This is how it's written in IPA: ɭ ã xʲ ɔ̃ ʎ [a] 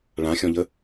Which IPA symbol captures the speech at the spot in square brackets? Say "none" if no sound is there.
ə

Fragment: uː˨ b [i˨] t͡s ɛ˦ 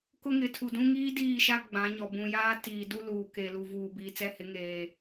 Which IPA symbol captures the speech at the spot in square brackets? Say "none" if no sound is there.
iː˨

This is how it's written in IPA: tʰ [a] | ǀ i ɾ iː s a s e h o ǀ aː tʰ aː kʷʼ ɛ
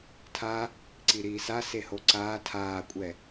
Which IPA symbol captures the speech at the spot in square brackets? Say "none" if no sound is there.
a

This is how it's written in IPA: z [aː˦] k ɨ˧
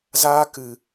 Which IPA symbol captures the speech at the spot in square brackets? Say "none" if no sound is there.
aː˦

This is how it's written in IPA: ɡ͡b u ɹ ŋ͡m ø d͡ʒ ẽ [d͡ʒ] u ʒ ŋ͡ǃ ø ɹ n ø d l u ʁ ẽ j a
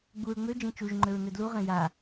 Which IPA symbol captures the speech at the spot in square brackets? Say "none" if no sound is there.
t͡ʃ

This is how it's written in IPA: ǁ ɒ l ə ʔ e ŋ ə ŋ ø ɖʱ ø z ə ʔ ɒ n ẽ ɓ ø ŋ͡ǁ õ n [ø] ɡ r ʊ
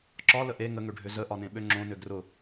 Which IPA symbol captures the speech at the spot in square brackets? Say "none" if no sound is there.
ø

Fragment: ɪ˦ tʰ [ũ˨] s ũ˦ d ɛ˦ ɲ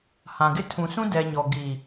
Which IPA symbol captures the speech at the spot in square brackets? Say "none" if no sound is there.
ũ˨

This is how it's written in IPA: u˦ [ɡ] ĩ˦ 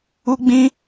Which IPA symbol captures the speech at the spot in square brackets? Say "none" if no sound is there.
ɡ͡b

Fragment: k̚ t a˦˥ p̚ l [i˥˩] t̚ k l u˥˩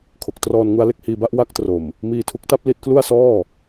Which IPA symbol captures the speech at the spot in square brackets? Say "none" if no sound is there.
i˦˥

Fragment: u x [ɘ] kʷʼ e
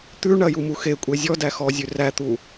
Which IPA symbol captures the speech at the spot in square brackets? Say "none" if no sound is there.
e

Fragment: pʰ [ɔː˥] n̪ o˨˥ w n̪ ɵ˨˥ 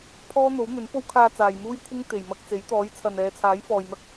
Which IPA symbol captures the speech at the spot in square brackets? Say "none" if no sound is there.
ɔː˥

